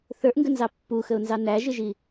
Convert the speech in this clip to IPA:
θ ə˞ ʔ ŋ ɡ ə n z ɑ pː u x ə ʊ̯ n z ɑ n æ ʒ ɪ ʒ i

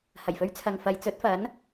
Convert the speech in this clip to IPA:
h ɐ˨˩ j f ɵ˧ ɥ t͡sʰ ɐ˨ ŋ f ɐ˨˧ j t͡s ɵ˨˥ t̚ f ɐ˨˥ n

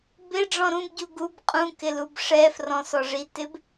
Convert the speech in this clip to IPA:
b ɪ ɖ͡ʐ ɔ̃ ɾ ũ b ɟ u ɡ u b qʼ ũ k ɪ l u b ʂ ɛ f r ɔ̃ s ɔ ʐ i t ɪ b

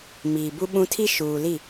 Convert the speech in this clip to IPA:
m iː˨ b u˦ ɓ ũ˦ tʰ i˦ ʃ uː˨ l i˦˨

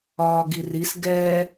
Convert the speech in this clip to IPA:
ɒː ɡ i r i s ɡ ɛ

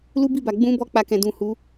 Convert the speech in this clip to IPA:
l u˦ b i˦˨ b a˨ ɡ͡b ũ˧ b ɔ˧ k͡p a˧ k ɛ̃˨ d ũ˨ h u˨˦

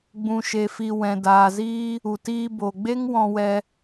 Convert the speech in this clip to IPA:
ɡ͡b ũ˧ ʃ e˧ f i˧ w ɛ̃˨ d aː˨ z iː˦ | u˨ t iː˧ b o˨ ɡ͡b e˦ ŋ w ɔ̃˧ w ɛ˧

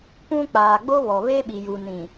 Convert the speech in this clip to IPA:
p ũ˦ k͡p aː˨ ɡ͡b o˦ β ɔ˨ β e˦ ɓ i˨ j u˨ n ĩ˨

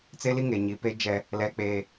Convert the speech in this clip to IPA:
t͡s e˦ l i˦ ŋ e˨ ɲ i˨ p e˦ d͡ʒ ɛ˦ | l ɛ˦ k͡p eː˦

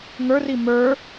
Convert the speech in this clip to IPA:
ŋ ə˞ r i m ə˞

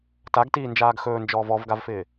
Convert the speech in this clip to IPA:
t a ɡ t iː n d͡ʒ aː ɡ x ɵː n d͡ʒ ɔː v ɔ v ɡ a v f ɪː

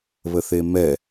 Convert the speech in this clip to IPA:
β ə θ e m ɛ

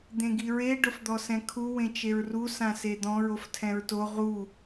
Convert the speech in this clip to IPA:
d̪ ẽ ɡ i ɹ e ɖ ʊ f d̪ ɔ s ɛ̃ kʰ u w ẽ t͡ʃ e ɹ r u s ã s e d̪ ɔ̃ ɹ o f tʰ ɛ̃ ɹ t o ʁ u

